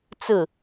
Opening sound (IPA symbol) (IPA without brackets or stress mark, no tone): t͡s